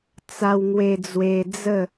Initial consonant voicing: voiceless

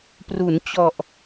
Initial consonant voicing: voiceless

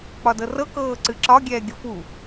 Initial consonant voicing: voiceless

